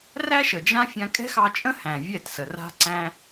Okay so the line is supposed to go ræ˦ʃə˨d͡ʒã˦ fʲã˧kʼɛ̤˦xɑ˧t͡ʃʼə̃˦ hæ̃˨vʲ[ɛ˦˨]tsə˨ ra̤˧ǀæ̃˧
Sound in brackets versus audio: correct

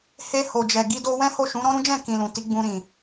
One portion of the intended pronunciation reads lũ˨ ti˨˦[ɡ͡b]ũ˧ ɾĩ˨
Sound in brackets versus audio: correct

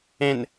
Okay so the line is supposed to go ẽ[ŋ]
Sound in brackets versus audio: incorrect: n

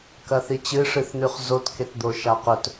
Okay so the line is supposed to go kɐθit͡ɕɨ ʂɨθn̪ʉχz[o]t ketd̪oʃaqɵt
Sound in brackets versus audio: correct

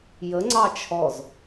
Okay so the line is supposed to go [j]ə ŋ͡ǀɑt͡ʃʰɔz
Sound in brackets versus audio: correct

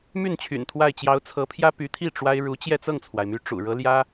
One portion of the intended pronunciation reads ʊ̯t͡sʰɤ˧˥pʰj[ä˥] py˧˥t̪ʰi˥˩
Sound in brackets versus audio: correct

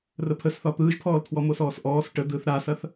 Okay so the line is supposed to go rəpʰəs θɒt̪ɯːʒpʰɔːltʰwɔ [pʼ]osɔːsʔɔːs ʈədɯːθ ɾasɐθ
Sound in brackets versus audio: incorrect: m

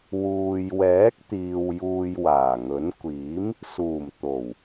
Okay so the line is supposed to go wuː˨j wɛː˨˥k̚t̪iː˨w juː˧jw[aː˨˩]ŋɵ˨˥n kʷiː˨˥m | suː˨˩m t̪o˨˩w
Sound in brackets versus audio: correct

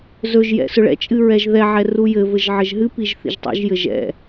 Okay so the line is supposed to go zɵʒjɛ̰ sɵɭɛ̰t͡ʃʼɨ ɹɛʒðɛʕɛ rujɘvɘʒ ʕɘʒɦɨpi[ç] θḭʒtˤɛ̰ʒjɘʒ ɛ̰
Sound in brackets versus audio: incorrect: ʒ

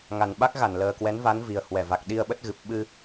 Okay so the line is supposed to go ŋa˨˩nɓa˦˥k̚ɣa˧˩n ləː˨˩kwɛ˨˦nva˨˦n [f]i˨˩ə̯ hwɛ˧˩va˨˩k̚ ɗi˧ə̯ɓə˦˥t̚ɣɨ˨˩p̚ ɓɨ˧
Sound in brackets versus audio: incorrect: v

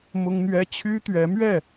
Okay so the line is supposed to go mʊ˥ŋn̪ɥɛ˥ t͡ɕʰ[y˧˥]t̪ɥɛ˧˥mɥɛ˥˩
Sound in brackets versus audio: incorrect: y˥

